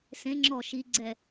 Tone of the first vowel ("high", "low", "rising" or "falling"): rising